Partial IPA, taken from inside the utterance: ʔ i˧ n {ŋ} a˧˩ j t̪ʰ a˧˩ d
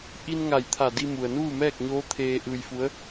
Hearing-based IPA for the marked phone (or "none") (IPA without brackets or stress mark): ŋ